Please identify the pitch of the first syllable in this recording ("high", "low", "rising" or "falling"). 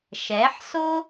rising